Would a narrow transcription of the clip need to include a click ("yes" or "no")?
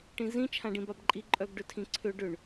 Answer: yes